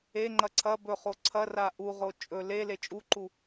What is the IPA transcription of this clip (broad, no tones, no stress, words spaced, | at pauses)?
eŋ͡ǃɐ ǀʰɐ bɵχo ǀʰɐra ʔuʁo t͡ʃʼɵ le let͡ʃʼuǃu